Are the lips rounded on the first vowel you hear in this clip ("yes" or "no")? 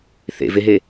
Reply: no